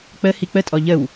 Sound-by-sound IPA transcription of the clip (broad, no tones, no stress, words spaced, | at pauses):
k͡pə hik͡pə tʼɔʎəw